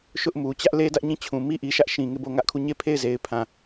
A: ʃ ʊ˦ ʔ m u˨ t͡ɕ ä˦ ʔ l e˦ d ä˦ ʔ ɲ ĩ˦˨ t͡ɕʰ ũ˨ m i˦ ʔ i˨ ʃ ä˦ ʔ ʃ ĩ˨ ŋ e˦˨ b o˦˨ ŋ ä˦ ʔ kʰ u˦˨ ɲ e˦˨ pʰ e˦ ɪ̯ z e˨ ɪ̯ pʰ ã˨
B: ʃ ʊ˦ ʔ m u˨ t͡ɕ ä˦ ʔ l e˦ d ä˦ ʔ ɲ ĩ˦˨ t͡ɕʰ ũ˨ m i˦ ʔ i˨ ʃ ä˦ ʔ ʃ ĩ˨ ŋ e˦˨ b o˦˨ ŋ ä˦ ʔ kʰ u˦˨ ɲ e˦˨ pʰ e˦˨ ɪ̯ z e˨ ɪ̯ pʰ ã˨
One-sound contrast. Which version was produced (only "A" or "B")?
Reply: B